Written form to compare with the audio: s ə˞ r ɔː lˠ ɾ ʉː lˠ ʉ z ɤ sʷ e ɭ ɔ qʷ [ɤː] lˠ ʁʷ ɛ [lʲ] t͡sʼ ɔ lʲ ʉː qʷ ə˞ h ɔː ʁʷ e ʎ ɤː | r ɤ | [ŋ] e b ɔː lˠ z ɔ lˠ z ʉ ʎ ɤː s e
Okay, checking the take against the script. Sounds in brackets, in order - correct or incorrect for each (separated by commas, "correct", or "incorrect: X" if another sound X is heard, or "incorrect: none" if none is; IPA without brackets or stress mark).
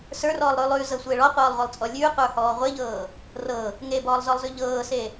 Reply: correct, incorrect: lˠ, correct